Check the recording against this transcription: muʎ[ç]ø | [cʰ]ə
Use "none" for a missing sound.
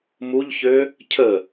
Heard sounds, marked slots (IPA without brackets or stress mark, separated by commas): ç, cʰ